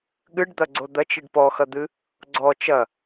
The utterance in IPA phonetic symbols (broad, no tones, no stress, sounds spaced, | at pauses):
ɠ ɨ ɖ d̪ ɐ ɡ͡ǀ o d̪ ɐ t͡ʃ i ɖ p ɔ x ɐ d̪ ɨ | ɡ͡ǀ ɔ t͡ʃ ɐ